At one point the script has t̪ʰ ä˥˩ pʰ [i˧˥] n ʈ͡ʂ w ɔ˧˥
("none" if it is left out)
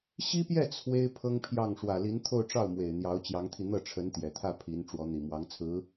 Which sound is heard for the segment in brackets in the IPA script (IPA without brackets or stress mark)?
i˧˥